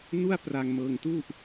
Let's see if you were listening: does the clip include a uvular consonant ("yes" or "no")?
no